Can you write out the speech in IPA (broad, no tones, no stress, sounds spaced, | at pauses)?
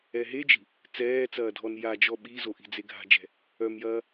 ɛ ɦ e d͡ʒ i̤ | t͡s ɛː t͡s ɐː dʱ ɔ n j a d͡ʒ ɔ ɓ i z o ʔ i̤ d͡z e ɡʱ a̤ d͡ʒ ɛ̤ | œ m j ɐː